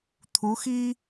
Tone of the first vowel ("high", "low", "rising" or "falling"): rising